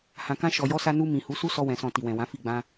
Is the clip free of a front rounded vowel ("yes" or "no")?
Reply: yes